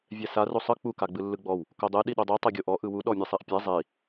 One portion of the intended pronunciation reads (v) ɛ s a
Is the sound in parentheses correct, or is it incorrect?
incorrect